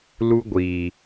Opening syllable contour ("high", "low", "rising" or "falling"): high